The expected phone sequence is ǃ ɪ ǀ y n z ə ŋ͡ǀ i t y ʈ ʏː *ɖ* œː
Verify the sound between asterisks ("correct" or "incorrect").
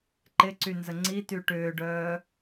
correct